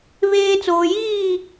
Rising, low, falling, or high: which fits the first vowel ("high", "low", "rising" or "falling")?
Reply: high